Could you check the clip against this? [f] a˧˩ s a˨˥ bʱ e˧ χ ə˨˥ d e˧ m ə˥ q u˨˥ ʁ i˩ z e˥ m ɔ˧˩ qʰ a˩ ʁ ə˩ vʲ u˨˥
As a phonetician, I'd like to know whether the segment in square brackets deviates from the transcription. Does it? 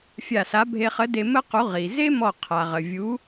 yes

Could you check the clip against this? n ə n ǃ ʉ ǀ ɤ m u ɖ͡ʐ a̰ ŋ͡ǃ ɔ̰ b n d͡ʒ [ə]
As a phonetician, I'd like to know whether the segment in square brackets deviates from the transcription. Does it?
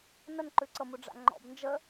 no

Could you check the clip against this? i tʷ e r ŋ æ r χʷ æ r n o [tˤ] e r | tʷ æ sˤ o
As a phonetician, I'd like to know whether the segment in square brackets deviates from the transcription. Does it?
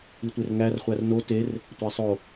yes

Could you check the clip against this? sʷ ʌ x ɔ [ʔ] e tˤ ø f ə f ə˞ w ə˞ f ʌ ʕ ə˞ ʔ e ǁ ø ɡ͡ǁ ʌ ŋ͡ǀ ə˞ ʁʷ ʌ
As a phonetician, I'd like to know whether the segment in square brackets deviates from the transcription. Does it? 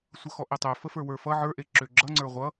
no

